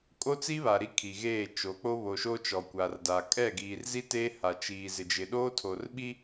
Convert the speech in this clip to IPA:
kʼ o˦ t͡s i˦ β a˨ ɾ i˦ kʰ i˨ ɣ eː˦˨ t͡ʃ o˨˦ k͡p o˦ β o˨ ʃ o˦ t͡ʃ ɔ˨ kʷ a˨ r d a˨ kʼ ɛ˦˨ ɡ iː˨ r z i˦ t eː˦ h a˨ t͡ʃ iː˨ z ɪ˨ d͡ʒ ɪ˨ ɗ oː˦ tʰ o˨ r ɓ i˦

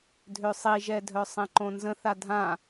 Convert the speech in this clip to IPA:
dʱ ø sˤ i ʒ ɛ dʱ œ sˤ ɛ̃ ǃ õ n z ə̃ θ a dʱ ã

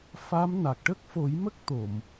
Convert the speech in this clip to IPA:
f a˧˥ m n a˨˩ k̚ ʈ ə˦˥ k̚ f o˨˩˦ j m ə˦˥ k̚ t̪ o˨˩˨ m

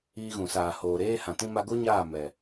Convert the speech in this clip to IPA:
iː˧ ɣ ũ˨ s aː˨ h oː˨ ɾ eː˦ h ã˨ t ĩ˦ m a˧ ɡ o˦ ɲ aː˦˨ m ɛ˨

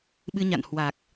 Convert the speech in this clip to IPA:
ɓ ɨ˧ ɲ a̰˧˨ n h w a˨˩ k̚

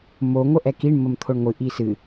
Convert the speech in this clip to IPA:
m o ŋʷ ə ʔ ɛ k i ɳ m ə m t̪ʰ o ɳ ŋʷ ɨ ʔ i s ɨ

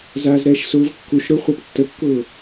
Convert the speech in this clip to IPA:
z aː z ɾ ɛː ʃ s ʊː v kː u ʃ ɾ ʊ χʷ a p tː ə kː ʊː

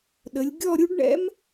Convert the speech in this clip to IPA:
ɗ ə˩˧ lʲ ɡʲ ɔ˥˧ ɾʲ u˥ ɖ ɳ ɛ̰˥ m

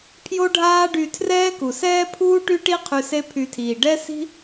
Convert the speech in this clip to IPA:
pʰ j o˥ ɖʱ aː˥ ɖ y˧ tʰ r ɛː˥ k u˩ s ɛː˥ pʰ uː˥ ʈ y˥ ʈ i˥ qʰ y˧ s e˥ pʰ y˧ tʰ iː˩ ɖ ɛ˥ s i̤˥

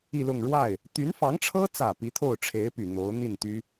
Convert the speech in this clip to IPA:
i˥˧ l ʊ˥˧ ŋ ɻ w a˥˩ ɪ̯ | t̪ y˧˥ n f ɑ˧˥ ŋ ʈ͡ʂʰ ɤ˥ t͡s ä˨˩ p i˧˥ t̪ʰ o˥˩ ʊ̯ ʈ͡ʂʰ e˧˥ ɪ̯ p y˨˩ n̪ o˧˥ ʊ̯ n̪ i˥˩ n t̪ y˥

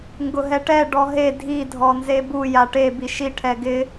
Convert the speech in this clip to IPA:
ŋ ɡ ʊ ɦ ɛ ʈ ɛ ɖ ɔ ɦ e dʱ i dʱ ɔ n z e b u j a ʈ e b i ʃ i ʈʰ ɛ ɡ ɪ

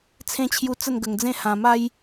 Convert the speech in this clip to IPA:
t͡sʰ ẽ˧ t͡ɕʰ j u˧ t͡s ə˥˧ n ɡ ə˧ ŋ d͡z ẽ˥˧ h ã˧ m a˦ j

